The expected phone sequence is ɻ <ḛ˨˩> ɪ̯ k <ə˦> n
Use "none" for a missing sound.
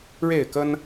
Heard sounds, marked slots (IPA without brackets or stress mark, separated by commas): e˥˨, ə˦